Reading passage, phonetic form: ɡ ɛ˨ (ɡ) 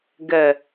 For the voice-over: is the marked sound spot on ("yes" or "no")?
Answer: no